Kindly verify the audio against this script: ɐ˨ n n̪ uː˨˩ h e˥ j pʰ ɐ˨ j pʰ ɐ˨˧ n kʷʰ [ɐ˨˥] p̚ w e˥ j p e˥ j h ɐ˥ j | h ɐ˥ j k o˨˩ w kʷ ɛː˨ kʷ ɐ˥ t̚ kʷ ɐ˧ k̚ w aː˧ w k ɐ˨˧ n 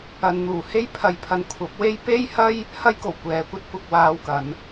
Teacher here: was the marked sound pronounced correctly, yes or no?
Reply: yes